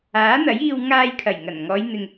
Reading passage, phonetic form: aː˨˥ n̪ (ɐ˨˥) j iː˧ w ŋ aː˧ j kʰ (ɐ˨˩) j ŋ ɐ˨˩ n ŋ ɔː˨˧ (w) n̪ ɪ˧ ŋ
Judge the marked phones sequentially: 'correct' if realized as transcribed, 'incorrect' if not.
correct, correct, incorrect: j

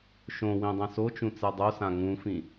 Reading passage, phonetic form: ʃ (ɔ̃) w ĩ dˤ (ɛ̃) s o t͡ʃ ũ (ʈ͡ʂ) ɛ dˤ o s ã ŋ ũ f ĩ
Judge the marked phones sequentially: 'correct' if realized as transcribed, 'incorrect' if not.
incorrect: õ, correct, incorrect: t͡s

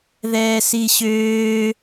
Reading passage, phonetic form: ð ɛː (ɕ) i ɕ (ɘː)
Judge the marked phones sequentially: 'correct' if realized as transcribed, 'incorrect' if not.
incorrect: s, incorrect: øː

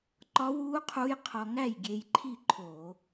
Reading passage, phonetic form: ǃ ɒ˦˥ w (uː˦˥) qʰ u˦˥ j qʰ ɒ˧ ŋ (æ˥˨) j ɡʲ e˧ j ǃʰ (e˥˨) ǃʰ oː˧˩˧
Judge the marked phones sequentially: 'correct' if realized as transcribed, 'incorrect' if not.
correct, correct, incorrect: i˥˨

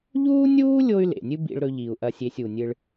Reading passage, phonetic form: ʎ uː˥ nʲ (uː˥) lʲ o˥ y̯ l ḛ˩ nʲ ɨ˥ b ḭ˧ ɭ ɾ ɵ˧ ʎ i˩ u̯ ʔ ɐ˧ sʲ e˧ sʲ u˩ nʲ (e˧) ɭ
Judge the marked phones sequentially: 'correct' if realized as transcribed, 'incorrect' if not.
correct, incorrect: ɨ˧

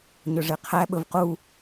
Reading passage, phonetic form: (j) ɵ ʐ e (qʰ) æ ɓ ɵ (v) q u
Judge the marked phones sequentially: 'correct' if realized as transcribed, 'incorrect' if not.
incorrect: ɲ, correct, correct

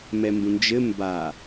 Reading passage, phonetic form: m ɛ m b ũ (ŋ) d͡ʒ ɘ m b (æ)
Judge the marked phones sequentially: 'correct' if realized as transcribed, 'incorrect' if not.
incorrect: n, incorrect: a

